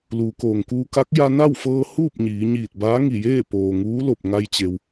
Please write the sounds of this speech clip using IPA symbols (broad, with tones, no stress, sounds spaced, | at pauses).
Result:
l uː˩˧ k oː˩ ŋ k uː˧ k a˧˥ k̚ j a˧ n a˥˨ w f ɤː˧ h uː˥˨ p̚ ɲ iː˩˧ ɲ iː˧˩ t̚ b aː˧˥ ŋ i˧˩ j eː˥˨ p oː˩ ŋ uː˧˥ l o˧˩ p̚ ŋ a˧ j t͡ɕ e˩ w